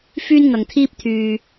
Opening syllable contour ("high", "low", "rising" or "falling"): high